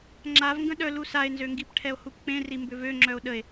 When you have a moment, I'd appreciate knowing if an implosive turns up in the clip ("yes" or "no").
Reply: yes